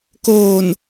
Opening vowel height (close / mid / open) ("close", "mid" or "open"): mid